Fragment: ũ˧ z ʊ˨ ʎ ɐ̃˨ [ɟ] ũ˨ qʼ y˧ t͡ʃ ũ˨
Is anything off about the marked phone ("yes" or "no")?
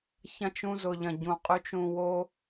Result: no